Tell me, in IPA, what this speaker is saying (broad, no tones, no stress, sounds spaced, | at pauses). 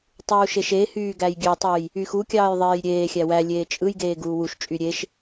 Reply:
tˤ uː ʃ e ʃ e h yː ɡ æ j ɡʲ ø tˤ u j | y x u kʲ ɑː j ðˤ eː j ɾʲ eː xʲ æ w æ lʲ eː t͡ʃʼ ɯ j ɡ eː ɡ uː w u ʃ t͡ʃʼ y ɾʲ e ʃ